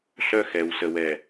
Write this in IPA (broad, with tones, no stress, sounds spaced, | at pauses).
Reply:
ɬ œ˦ x ɛ˨ w s ə˨ w ɛ˨